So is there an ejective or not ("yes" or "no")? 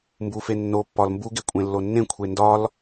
yes